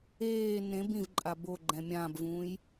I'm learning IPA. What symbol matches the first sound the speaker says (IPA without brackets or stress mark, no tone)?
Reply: eː